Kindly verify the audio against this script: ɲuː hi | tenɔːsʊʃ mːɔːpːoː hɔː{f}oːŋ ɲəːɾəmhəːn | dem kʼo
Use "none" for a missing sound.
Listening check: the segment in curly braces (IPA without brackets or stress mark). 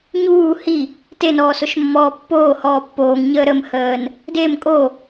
pː